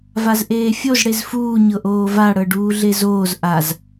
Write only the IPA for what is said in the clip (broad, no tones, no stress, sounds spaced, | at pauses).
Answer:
v a z ʔ eː fʲ o z ɽ e z f uː ɲ ɤ ʔ oː v a ɽ ɤ ɖ uː ɮ e z oː z ʔ a z